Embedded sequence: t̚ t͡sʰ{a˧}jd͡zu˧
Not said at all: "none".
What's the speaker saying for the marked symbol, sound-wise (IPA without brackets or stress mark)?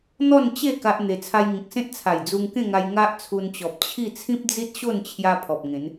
a˨˩